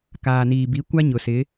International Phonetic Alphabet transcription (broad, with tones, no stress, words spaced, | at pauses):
kaː˨niː˨bi˨˦ kʷa˦ɲʊ˨sɪ˨˦